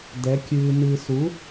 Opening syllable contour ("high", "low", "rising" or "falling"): rising